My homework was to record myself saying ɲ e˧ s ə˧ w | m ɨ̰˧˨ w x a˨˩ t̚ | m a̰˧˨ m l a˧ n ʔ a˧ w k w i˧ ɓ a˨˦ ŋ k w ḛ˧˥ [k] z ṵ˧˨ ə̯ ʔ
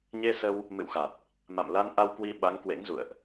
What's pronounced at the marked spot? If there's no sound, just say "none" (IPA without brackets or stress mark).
ŋ